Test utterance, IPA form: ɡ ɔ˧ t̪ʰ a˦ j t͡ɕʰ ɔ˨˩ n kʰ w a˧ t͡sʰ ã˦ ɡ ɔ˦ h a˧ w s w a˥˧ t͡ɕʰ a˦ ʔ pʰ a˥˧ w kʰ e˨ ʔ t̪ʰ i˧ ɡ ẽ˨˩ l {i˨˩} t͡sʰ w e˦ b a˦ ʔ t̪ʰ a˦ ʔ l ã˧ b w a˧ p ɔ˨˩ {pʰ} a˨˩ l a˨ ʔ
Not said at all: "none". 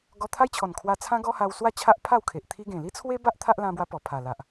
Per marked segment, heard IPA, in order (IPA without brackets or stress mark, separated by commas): i˦, pʰ